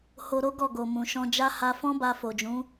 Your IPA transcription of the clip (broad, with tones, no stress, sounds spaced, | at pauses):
h o˧ ɾ o˦ ɡ ɔ˦˨ ɡ o˨ m ũ˨ ʃ ɔ̃˧ d͡ʒ a˦ h a˧ f ɔ̃˦ b a˧ f o˨ d͡ʒ ũ˨˦